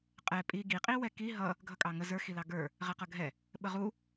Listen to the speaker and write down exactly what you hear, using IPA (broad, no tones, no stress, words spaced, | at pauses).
qʼɛ pʼi ɡi qʼiwɛki ɦʌ | ɡʱʌkʼɑŋə zə˞ xilɑɡə˞ | ʁɛqʌɡʱɛ | ɓəʁu